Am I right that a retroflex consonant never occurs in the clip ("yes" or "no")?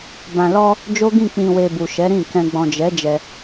yes